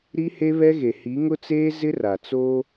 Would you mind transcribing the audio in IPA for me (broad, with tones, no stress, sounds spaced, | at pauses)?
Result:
ɾ i˦ h e˦ β ɛ˦ ɣ e˨ h i˨˦ ŋ ʊ˦ t͡s eː˦ z ɪ˦ r a˨ t͡s o˦